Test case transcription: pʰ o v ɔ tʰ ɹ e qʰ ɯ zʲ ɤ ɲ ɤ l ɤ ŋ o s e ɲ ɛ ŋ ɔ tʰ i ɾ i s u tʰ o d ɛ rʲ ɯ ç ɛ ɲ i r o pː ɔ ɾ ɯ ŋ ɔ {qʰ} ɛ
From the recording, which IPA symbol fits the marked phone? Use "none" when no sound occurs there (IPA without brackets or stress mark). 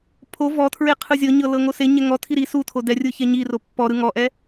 ʔ